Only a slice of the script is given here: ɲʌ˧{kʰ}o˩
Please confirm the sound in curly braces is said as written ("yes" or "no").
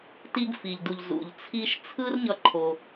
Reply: no